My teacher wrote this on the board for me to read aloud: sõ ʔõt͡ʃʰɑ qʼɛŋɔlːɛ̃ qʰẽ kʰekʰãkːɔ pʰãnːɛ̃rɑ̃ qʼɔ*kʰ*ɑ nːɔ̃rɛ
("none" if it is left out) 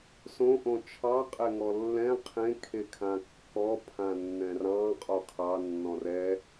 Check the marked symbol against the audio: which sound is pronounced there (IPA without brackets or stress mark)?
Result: kʰ